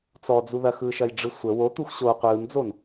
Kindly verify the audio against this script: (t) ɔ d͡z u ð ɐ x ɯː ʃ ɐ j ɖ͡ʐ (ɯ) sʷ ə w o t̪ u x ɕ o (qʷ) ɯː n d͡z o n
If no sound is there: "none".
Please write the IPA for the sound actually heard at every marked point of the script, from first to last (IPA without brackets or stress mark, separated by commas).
t͡s, ɯ, qʷ